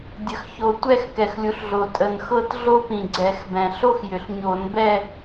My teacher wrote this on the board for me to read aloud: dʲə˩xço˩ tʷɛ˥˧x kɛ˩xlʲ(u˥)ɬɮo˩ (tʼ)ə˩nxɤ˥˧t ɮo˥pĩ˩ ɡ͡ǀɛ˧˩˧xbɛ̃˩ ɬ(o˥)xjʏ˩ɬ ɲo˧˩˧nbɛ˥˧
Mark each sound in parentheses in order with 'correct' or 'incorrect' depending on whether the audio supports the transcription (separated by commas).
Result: incorrect, correct, correct